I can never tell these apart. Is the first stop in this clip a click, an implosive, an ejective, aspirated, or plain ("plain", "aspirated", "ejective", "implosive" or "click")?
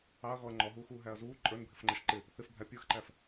click